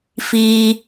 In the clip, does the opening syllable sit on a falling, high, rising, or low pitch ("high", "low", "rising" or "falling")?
high